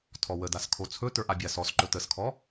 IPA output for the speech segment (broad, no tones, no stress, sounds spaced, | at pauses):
tʰ ɔ w ə d a s kʰ o t͡sʰ ɵ t ə˞ ʔ a bʲ a s ɔ s ǃ ɵ t ə s kʰ ɔ